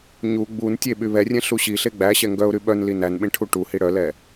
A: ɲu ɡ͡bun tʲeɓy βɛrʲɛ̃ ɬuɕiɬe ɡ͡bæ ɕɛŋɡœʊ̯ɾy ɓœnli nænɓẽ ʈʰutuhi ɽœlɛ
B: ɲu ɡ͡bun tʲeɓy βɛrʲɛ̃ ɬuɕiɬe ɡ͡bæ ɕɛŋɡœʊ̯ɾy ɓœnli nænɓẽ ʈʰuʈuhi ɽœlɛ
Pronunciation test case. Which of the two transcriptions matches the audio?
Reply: B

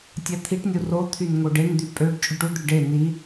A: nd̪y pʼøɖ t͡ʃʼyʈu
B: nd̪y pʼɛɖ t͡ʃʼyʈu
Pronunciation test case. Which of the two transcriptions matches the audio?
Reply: A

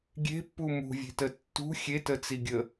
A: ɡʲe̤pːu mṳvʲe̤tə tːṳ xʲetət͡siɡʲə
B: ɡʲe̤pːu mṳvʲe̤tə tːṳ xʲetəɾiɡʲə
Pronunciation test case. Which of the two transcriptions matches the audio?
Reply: A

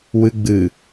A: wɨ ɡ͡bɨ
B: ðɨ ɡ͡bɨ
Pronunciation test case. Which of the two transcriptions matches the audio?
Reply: A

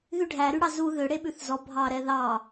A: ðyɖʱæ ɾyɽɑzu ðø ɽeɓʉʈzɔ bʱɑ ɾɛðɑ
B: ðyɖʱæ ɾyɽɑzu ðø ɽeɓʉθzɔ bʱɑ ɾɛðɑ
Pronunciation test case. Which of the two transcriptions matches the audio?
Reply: B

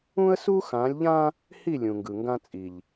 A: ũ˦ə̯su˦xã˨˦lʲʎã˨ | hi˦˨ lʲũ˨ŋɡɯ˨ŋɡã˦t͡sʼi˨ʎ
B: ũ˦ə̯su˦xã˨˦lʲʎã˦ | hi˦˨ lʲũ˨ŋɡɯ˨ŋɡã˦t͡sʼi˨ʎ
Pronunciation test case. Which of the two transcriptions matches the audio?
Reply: B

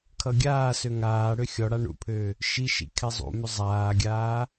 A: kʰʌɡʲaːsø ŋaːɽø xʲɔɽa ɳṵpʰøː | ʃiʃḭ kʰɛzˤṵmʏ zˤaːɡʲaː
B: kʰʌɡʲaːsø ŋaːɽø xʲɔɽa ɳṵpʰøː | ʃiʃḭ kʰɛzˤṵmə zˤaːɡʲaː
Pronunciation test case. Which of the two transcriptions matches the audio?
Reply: A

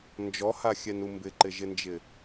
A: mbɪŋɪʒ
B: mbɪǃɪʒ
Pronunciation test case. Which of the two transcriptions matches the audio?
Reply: B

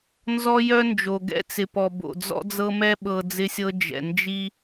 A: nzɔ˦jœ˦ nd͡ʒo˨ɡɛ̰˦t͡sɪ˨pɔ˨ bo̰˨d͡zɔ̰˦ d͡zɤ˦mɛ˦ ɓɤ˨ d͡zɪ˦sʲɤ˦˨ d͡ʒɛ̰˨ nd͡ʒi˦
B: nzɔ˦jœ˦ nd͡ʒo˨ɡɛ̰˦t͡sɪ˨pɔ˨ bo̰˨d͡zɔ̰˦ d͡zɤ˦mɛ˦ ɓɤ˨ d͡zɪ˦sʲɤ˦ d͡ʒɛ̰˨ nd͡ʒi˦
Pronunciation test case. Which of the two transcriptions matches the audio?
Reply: B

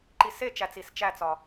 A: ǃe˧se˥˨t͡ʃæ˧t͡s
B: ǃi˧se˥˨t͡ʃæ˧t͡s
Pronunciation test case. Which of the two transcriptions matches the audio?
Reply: B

